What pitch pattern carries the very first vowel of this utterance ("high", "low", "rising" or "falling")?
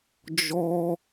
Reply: high